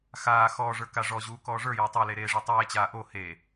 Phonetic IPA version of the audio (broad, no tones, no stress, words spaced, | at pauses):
xaː xɔːʐə˞ kaʐɔʑuː kɔːʐə˞jɔːtˤ ele ɾeːʐitˤeːt͡ɕaː ʔo he